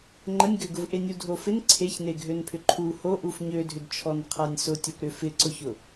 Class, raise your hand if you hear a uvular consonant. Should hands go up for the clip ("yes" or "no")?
yes